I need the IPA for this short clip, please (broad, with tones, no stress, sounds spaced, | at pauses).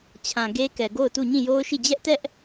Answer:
t͡ɕʰ ã˨ ɡ e˦ k ɛ˨ ɡ o˦˨ ʊ̯ t u˦˨ ɲ ĩ˦˨ j o˦ ʊ̯ ʃ i˦˨ d͡ʑ ɛ˦ ʔ t ɛ˦ ʔ